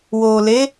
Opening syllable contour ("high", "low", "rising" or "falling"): low